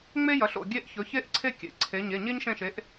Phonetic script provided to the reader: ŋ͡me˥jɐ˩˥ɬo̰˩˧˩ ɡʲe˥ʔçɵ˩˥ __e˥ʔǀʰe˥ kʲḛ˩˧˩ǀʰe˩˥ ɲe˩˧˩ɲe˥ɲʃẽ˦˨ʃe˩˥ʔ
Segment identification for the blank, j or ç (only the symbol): ç